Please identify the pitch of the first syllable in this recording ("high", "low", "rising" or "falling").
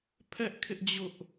high